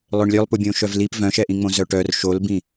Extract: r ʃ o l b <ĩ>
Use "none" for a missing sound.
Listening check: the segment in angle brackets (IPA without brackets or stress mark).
ĩ